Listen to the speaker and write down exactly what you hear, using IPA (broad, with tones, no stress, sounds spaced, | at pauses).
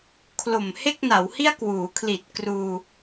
kʰ l o˨˩ m h e˥˩ k̚ n a˩˦ w h i˥˩ a̯ k w uː˩˦ kʰ l i˨˩ t̚ k r uː˧